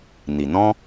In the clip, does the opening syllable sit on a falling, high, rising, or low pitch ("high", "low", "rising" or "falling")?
low